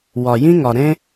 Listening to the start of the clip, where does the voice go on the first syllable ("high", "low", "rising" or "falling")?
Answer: low